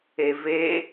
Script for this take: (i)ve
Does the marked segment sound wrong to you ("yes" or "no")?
yes